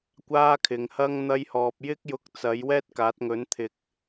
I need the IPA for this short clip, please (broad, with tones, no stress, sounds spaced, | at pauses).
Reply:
kʷ aː˥ kʰ ɪ˨ ŋ h ɐ˥ ŋ n̪ ɐ˥ j h ɔː˧ p̚ j ɪ˥ k̚ j ʊ˧ k̚ t͡s ɐ˨˥ j w ɛː˥ t̚ k aː˨˥ t̚ ŋ ɵ˨˥ n t̪ʰ ɪ˨ k̚